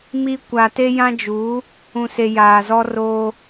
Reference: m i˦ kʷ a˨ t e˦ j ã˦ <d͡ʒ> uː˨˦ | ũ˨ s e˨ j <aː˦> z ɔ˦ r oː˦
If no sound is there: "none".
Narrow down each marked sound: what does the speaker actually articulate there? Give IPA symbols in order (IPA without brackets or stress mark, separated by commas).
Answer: d͡ʒ, aː˨